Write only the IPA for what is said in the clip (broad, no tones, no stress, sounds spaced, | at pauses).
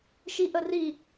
ʃ i ʔ ə r i